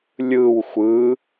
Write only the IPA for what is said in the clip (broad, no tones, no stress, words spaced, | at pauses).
lʲɯw xʷɯ